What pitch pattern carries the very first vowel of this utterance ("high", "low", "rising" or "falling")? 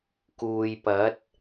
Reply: low